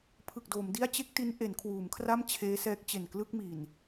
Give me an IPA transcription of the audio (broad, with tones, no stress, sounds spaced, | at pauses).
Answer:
pʰ ɯ˨˩ k̚ d oː˩˦ m d i˥˩ a̯ t͡ɕ e˥˩ k̚ t i˦˥ n ʔ e˩˦ n kʰ w uː˩˦ m kʰ r a˥˩ m t͡ɕʰ eː˦˥ s ɛː˦˥ k̚ t͡ɕ e˨˩ n k l ɯ˥˩ k̚ m i˨˩ n